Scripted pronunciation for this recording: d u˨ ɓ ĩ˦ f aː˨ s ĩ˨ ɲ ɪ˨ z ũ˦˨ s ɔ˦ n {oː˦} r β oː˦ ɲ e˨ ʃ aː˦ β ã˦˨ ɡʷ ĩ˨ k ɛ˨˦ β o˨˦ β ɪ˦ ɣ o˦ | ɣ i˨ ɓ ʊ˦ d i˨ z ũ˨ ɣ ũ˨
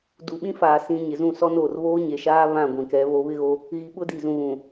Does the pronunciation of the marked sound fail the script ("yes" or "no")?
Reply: yes